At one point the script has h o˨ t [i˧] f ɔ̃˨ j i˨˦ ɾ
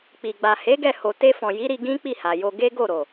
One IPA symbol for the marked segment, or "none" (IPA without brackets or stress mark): e˧